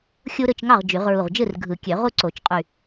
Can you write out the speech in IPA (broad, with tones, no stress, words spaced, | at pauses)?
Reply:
xʲu˦ɾɯ˥˩t͡ʃŋɑ˥˩ʁ d͡ʒy˨˩˦ʁɹu˧˩ʁ d͡ʒɯ˥˩rɡʱɯ˨˩˦kʲø˨˩˦ʁu˦ ǀo˨˩˦t͡ʃqʼy˧˩